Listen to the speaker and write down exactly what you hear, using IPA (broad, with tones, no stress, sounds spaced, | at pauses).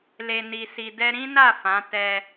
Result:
l e˧ n i˧ s i˧ d ɛ˧ ɾ ĩ˦ n a˦˨ f ã˨˦ t ɛ˧